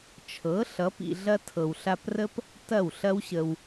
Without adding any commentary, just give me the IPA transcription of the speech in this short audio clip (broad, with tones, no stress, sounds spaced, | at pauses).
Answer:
t͡ʃʰ ɤ˨˦ ɬ ʌ˨˦ p ḭ˧ ɮ ɐ˦ tʰ ɤ˨ w ɬ a˧ p r ə˦ p | t ɐ˦˨ w ɬ ɐ˦ w ɕ ə˧ w